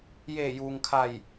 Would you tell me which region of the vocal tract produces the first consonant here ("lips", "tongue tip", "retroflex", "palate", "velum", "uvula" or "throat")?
palate